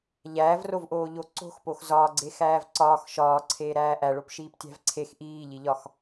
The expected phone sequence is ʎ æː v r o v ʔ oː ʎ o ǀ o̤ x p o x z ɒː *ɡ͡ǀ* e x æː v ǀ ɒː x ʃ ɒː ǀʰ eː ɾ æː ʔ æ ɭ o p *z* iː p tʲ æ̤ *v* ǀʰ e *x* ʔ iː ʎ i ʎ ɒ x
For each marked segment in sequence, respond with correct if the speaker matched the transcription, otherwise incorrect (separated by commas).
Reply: correct, incorrect, correct, correct